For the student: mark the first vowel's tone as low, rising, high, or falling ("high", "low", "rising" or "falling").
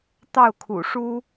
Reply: falling